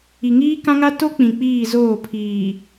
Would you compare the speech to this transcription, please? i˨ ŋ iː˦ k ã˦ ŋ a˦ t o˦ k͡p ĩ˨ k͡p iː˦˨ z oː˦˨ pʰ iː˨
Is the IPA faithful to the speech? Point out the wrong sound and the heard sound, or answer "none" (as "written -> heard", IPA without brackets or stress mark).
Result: none